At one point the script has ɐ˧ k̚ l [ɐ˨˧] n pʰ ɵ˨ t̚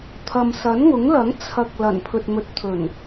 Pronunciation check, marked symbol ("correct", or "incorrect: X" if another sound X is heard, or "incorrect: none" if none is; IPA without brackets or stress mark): incorrect: ɐ˨˩